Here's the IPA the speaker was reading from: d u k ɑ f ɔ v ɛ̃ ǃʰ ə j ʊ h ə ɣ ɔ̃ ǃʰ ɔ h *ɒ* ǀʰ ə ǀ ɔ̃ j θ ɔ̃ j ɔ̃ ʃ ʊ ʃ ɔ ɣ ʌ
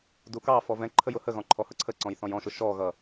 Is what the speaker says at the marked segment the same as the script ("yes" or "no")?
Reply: no